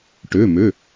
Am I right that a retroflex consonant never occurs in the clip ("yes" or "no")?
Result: no